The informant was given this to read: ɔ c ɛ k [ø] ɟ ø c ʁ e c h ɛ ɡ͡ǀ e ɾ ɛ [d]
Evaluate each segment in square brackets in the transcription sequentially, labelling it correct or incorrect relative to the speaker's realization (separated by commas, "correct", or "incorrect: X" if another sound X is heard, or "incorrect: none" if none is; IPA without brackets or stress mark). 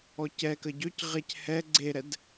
incorrect: ə, correct